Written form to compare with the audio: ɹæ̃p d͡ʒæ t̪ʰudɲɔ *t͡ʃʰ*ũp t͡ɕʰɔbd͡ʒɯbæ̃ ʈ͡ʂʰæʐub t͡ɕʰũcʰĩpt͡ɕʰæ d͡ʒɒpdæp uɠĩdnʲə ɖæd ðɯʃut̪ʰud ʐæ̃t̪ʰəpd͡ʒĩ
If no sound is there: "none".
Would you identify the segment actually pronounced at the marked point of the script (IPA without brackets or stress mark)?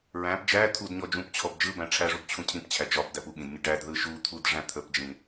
d͡ʒ